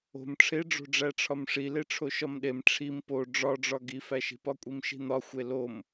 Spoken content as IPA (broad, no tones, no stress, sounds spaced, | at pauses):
o̤ m ʈ͡ʂʰ e ɖ͡ʐ o̤ ɖ͡ʐ æ ʈ͡ʂʰ ɒ m ʂ i l e ʈ͡ʂʰ o ʃ ɒ m ɗ e m ʈ͡ʂʰ i m p o ɖ͡ʐ ɒ ɖ͡ʐ ɒ ɡ i f æ ʃ i̤ p ɒ kʷʼ i m ʃ i̤ n̪ ɒ xʷ e l o m